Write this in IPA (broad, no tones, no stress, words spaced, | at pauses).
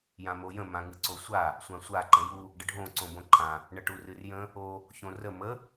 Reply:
jãmojə̃ mãŋɨǀosʷa | sʷãsʷa ǃə̃ju | ɖəɖʱõ ǀõbõǃʰã | ɳəʈurɨrjə̃ | o | çõrə mə